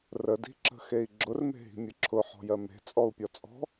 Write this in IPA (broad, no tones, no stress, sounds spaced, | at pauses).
r ə d i̤ ǁ ə̤ x e i̯ ɡ͡ǁ ʊ r m e̤ ɦ i̤ mʲ ɯ ǁʰ ʊ ħ ɔ̤ j ɜ m e̤ t͡sʼ ɔ u̯ pʲ ɔ t͡sʼ ɔ̤